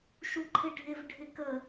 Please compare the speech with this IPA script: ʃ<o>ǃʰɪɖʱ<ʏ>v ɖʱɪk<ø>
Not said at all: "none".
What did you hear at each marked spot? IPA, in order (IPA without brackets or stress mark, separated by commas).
u, ɪ, ə